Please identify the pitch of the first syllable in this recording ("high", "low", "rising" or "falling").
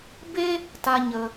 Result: high